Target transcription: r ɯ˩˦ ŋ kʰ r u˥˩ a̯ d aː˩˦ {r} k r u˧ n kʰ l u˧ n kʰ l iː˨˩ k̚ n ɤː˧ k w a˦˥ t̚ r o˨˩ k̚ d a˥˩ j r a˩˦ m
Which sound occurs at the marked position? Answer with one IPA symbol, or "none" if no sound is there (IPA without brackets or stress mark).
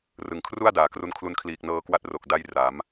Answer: none